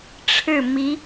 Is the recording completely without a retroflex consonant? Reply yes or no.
no